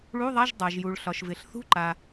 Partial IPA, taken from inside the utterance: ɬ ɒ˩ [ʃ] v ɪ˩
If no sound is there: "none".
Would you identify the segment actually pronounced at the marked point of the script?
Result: ʃ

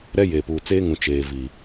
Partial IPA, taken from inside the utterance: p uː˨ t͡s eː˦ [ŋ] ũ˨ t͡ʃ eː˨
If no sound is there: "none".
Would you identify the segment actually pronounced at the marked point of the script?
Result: ŋ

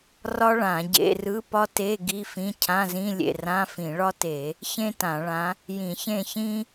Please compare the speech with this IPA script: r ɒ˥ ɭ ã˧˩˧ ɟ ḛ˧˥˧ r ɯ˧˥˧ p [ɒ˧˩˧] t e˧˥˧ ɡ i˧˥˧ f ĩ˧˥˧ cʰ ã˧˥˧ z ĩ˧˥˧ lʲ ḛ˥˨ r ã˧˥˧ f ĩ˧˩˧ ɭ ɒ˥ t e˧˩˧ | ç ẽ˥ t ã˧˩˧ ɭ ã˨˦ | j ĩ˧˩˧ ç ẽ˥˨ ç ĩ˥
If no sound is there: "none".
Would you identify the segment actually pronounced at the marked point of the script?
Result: ɒ˥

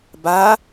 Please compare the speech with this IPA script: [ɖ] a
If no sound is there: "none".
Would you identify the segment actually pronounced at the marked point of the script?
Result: b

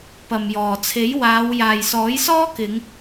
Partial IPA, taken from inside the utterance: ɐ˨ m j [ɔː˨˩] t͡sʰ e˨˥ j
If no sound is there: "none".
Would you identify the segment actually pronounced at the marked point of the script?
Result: ɔː˨˩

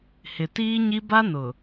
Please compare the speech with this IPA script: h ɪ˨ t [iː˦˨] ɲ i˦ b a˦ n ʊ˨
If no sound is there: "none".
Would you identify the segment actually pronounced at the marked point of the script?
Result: iː˦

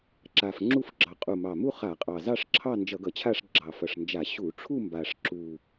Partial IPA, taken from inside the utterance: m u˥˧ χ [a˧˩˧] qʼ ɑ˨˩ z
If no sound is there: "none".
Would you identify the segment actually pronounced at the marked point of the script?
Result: a˧˩˧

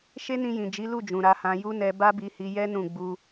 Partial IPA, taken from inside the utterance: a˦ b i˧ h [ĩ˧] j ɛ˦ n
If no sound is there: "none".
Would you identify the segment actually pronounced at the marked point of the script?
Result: i˧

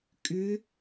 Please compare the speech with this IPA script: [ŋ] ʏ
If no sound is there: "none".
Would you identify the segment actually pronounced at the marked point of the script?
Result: kʼ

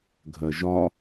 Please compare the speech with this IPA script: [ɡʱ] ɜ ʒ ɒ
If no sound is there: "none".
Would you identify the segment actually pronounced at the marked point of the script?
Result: ɡʱ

